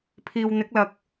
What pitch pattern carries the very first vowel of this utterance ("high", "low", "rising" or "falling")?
low